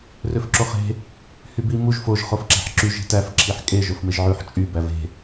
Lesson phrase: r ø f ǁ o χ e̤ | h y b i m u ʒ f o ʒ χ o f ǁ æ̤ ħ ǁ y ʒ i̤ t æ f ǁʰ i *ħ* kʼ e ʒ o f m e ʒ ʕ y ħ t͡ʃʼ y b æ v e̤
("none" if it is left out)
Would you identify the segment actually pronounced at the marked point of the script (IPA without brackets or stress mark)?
ħ